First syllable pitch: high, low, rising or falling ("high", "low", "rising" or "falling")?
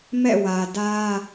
falling